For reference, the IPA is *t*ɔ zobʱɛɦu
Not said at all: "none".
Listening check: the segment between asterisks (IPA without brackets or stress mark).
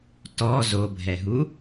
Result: t